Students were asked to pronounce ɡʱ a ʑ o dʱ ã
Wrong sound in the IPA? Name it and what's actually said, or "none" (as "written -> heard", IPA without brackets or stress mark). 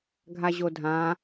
none